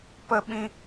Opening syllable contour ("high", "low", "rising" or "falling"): high